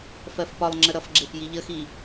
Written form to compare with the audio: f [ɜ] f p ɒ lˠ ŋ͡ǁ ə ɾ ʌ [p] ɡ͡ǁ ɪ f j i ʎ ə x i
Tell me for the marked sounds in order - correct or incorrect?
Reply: correct, incorrect: f

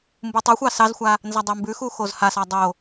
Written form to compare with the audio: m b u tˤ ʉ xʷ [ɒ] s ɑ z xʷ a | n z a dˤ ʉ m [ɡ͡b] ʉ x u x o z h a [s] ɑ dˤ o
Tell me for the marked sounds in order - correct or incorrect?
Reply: incorrect: ɑ, incorrect: b, correct

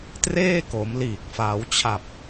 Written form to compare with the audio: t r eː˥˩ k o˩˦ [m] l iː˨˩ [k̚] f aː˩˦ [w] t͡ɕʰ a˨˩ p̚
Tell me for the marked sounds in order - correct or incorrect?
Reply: correct, correct, correct

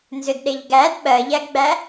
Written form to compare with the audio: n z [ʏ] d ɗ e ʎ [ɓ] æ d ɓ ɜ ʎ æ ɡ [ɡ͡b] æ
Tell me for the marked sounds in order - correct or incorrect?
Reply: correct, incorrect: ɡ, correct

